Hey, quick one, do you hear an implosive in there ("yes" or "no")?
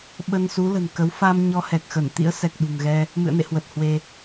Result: yes